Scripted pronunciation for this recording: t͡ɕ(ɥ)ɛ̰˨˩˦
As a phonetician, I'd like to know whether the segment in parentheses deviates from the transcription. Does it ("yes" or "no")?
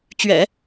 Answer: no